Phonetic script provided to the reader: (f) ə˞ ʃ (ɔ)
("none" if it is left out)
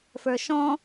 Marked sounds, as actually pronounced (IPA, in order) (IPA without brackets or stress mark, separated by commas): f, ɔ̃